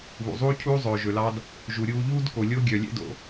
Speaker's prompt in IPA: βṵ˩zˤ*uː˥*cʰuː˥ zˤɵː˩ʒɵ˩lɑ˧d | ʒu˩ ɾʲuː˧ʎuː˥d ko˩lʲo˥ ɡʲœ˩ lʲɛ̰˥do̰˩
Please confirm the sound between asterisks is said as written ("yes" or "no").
yes